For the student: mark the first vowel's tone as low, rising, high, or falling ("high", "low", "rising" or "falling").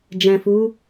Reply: low